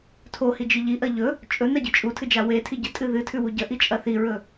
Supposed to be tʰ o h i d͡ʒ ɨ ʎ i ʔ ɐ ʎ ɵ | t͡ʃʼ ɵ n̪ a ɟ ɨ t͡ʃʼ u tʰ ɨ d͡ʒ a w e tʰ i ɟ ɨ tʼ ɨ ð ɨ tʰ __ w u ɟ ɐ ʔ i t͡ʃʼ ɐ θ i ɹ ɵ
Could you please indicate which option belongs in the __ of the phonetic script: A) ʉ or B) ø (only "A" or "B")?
A